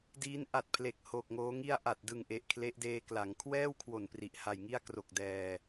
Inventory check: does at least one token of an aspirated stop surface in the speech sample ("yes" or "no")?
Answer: yes